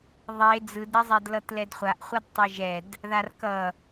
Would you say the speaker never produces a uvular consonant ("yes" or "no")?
no